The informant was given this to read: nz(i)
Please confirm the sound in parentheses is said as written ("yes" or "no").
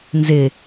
no